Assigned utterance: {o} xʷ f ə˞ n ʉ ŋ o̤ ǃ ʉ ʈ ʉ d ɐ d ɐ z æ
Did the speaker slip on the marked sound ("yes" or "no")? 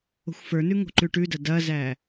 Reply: yes